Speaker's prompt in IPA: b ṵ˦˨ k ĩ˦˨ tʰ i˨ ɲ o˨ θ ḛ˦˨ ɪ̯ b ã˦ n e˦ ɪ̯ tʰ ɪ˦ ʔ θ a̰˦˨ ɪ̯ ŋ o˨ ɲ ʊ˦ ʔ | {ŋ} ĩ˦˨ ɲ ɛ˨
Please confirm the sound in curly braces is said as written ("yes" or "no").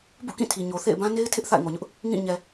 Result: yes